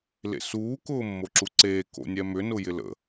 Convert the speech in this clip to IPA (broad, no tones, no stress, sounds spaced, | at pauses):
l ḛ s uː k ʊː mː o ǁ u ǀ eː k o̰ nʲ ɛ m ʏ n ʊ j ɪ l ə̰